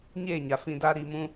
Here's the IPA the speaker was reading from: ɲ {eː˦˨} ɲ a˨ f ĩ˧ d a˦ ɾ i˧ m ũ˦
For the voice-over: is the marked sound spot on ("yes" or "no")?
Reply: yes